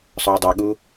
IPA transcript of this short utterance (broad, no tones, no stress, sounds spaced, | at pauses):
sˤ ʊ ɐ̯ dˤ ɛ ɠ u